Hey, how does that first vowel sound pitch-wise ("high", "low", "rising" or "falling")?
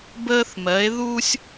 high